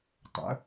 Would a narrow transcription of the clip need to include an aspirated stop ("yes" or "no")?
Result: no